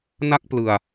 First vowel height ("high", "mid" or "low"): low